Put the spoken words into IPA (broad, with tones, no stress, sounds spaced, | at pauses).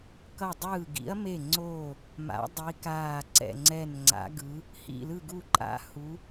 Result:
k ʌ˧˩ dˤ ɯː˧˩ ɡ ḭ˨˦ ɐ̯ m e˧˩ ŋ͡ǀ oː˧˩ | m a̰˨˦ dˤ i˨˦ k aː˧˩ ǀ ɛ̰˧˩ ŋ͡ǀ ɛ˧˩ n ŋ͡ǀ a̰˨˦ ɡ ɯ˨˦ | h ḭ˧˩ l ɯ˧˩ ɡ u˧˩ ǃʼ a̰˨˦ h u˨˦